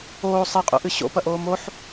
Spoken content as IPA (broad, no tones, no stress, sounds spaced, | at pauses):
oː sˤ e qʼ o̰ ʔ ɨ ɕ o̰ p ɐ ʔ oː m o ħ